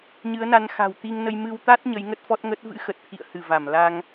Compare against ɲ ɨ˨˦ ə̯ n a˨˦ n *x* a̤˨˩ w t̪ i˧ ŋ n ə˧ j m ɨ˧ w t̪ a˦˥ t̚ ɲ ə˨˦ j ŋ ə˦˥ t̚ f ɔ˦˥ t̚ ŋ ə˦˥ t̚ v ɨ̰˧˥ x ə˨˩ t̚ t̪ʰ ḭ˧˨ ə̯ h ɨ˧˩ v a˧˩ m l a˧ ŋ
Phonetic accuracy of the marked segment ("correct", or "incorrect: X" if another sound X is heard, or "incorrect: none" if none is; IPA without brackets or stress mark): correct